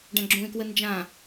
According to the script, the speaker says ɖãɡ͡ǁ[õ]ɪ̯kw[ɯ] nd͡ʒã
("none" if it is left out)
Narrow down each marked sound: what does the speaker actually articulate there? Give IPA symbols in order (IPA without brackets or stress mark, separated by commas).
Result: ũ, ə